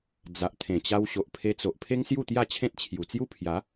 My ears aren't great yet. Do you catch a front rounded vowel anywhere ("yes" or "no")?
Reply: no